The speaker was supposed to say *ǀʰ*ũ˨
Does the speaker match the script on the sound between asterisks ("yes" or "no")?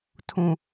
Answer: no